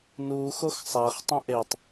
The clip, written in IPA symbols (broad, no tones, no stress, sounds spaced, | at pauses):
n uː x o x sˤ æ χ tˤ ũ ʔ e tˤ